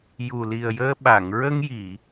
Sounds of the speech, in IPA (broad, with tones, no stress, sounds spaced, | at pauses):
j u˨˩ l i˨˩ ə̯ j əː˧ ɓ a˨˩˨ ŋ ɹ ə˧ ŋ j i˨˩˨